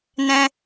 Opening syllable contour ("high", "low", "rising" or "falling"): high